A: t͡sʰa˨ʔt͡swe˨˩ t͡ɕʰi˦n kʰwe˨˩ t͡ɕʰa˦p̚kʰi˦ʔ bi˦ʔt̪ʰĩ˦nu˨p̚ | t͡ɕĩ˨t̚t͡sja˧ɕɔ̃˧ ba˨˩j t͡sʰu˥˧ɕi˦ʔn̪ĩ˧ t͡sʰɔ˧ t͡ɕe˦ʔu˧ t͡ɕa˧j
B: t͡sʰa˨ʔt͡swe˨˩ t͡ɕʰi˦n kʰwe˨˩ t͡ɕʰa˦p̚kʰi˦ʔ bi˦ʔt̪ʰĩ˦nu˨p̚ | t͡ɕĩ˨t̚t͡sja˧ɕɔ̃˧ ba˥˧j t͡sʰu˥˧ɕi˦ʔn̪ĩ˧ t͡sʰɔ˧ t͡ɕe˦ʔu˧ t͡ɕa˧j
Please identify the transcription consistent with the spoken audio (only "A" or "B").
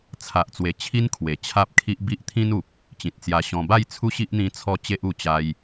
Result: B